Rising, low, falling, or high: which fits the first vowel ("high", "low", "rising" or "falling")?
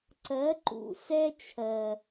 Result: rising